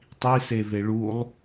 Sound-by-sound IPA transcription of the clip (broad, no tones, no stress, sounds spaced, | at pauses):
tˤ i s e v e ɭ u lˠ